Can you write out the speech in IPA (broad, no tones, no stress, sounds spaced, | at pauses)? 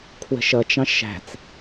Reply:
kʰ w ə̤ ʃ ʌ t͡ʃ ɑ̃ ʃ æ̤ t͡s